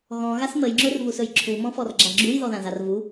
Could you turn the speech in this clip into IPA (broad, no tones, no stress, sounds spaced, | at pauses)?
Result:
ɣ ɔ̃ ɣ a s m ə j ŋ͡ǁ ɵ r v u s ɵ j ǁʰ u m ɔ̃ f ɔ r ɡ͡ǁ a ɡ͡ǁ u j ð ɔ ð ã z a r v u